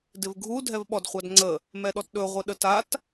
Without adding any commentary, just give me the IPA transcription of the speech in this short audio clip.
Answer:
dɪvɡʱu dʱɛvɓɔdχʷɑdŋ͡ǀə | mɛɗɔtɗɵ ʁʷɪɗətat

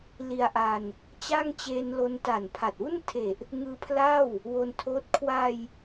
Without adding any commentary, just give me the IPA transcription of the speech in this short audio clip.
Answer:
li˧a̯ʔa˧n | t͡ɕa˥˩ŋt͡ɕeː˧nlo˧n ta˨˩npʰa˨˩t̚wu˥˩ntʰe˨˩ʔ | ŋɯː˧pʰla˥˩w | wo˧ntʰoː˦˥t̚ kʰwa˧j

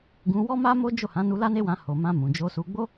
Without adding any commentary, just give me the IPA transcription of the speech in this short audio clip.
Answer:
ɡũ˧ wɔ˦ma˦mo˦ d͡ʒo˦˨hã˨˦nu˧ la˦ne˦wã˧ ho˨mã˧ mũ˨d͡ʒo˧su˧ ɡ͡bo˦

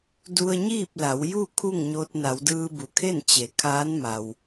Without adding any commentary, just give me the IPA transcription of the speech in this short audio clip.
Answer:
du˧ə̯ɲiː˥˨p̚la˩˧w ju˥˨ kʰu˥˨ŋɲo˧t̚ na˩˧wdɯː˧bu˩kʰe˥˨n t͡ɕe˩˧ kʰaː˧˥nma˩w

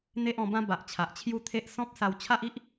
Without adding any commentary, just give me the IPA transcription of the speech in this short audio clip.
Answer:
n̪e˦ʔɔ̃˧bã˦ba˨ʔ t͡ɕʰa˨ʔt͡ɕʰju˦t̪ʰe˦ʔ sɔ̃˦p̚sa˧w t͡ɕʰa˦ʔi˦ʔ

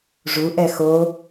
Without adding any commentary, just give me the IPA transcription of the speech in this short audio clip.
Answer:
ʐuʔɛ xo

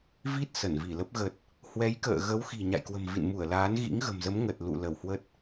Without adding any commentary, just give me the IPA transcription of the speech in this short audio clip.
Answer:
vi˦˥t̚ sə˧˩nvi˧˩lə˦˥p̚ ɣə˨˩t̚ | hwɛ˨˦jkə̰ː˧˨ ɣə˨˦wxi̤˨˩ ɲa̰˧˨jkwə̤˨˩mvḭ˧˨n mu˧˩ə̯laː˨˦n ɣḭ˧˥ŋɣə̤˨˩mzə˨˦m ŋə˨˩t̚ lṵ˧˨lə˧˩whwə˦˥t̚

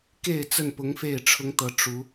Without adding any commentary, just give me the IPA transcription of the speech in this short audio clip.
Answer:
ke˥˨ɪ̯t͡sə˥˨npʊ˨˦ŋ fe˥˨ɪ̯ʈ͡ʂʰʊ˦ŋt̪ɤ˨˦ ʈ͡ʂu˨˦

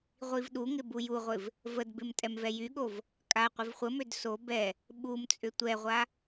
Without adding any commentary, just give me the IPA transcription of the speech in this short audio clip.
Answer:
ʁʷivɗuŋɪ bujuʁʷɪv | vədbɪm tʼɛmvɛjyɠov | kʼa qʷɪvχʷəmød so bɛ | ɓumt͡sʼʏ tʷɛʁʷa

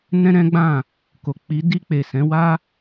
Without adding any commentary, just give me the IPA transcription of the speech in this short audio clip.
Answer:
nɛ̃˦ɾɛ̃˦ɡ͡bã˦˨ | ko˨k͡pi˨˦ di˧k͡pe˨sɛ̃˨˦wa˦

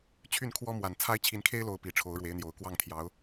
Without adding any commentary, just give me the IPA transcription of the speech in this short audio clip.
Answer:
t͡ɕʰy˥˩nkʰwɔ˥ mwa˨˩nt͡sʰa˥ɪ̯ t͡ɕʰi˧˥nkʰe˥ɪ̯lo˧˥ʊ̯ pi˨˩ʈ͡ʂʰo˧˥ʊ̯ɻwe˧˥ɪ̯n̪jo˨˩ʊ̯ kwɑ˥˩ŋt̪ʰjɑ˧˥ʊ̯

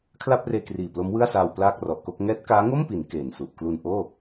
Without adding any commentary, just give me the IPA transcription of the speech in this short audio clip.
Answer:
kʰla˥˩p̚reː˧kriː˨˩ plo˦˥mwɯ˥˩a̯saː˧w plaː˥˩k̚rɔ˨˩ʔko˥˩k̚ ŋɛː˦˥t̚kaː˦˥ŋo˥˩mpi˩˦n keː˨˩nsu˨˩ʔ klu˧n ʔoː˥˩

